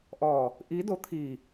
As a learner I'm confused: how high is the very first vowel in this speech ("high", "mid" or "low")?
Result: mid